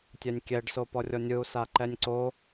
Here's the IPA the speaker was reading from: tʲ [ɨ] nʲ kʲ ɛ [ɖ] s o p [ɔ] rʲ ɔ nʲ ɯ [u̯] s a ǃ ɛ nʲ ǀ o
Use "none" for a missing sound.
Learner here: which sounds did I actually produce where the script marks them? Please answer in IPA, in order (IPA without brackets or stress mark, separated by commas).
ɛ, ɖ, ɔ, u̯